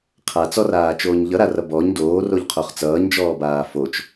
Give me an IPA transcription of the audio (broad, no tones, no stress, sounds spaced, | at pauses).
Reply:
qʰ a t͡s ɔ r aː t͡ʃ oː ɲ ʎ ʌ ɾ a r ʌ b ɔ ɲ d oː r o ʎ qʰ o χ t͡s ʌː ɲ d͡ʒ ɔː b aː f o t͡ʃ